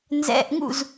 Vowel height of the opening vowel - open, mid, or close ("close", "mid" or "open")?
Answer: mid